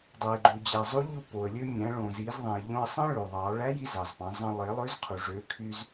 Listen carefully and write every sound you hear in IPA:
dˤe˩ɡ͡ǃu˩d͡ʑæ˩zˤu˧˥ ʎu˧po˩ə̯lʲø˧mʲæ̃˩˧ ɭõ˩zi˩˧zðˤĩ˩ə̯ ʎõ˧ə̯sˤẽ˥ ɭø˩ðˤɑ˩˧ ɭæ˧˥ji˧ zɑ˩zpɑ̃˩˧zˤɑ̃˧ lˠe˩˧lˠø˧˥zqʰu˩ ʐø˩˧kʰy˧z

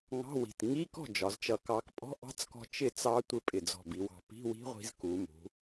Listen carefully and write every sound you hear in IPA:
ŋɑ̤˧˥˧ wi̤˧˩t ŋi˧˥˧kɔ̤˥˩ d͡ʒɒ˩˧zt͡ʃʌ˧˩kɑ˧k pʼɔ̤˧˥˧ʔɑ̤˦˥t͡skɔ̤˧ t͡ʃɪ˥˩t͡sɑ˦˥tʷɪ˥˩ pʼɪ˧˩d͡zɔ̤˧˩bi˩˧wɑ̤˧˩ pi̤˧˥˧wi̤˦˥ʁʷi̤˧z ku˩˧mṳ˩˧

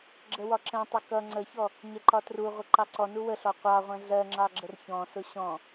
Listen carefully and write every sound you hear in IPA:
ɡ͡ǁəwɒǁɛ̃tˤʊ kʌ ŋ͡ǀəçɔ | ɲɛǃɒtruʁʷə ǃɑǀɔnu wəɬɔ qʷɑʁʷɛ̃ ɮɜŋ͡ǁɑ ɡ͡ǁərçɔ̃sʊ ɕɔ̃

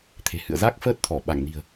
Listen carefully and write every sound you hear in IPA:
t̪ʰe̤˨˩hɨ̰˧˨ə̯za˦˥k̚ fəː˦˥t̚t̪ʰɔ˧˩ ɓa˧˩ŋni̤˨˩ə̯

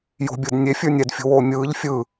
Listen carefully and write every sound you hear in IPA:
jo̤bʲɯd nʲefʲə˞ nʲɛdfʲo̤woː mʲɯːʎ fʲɯ

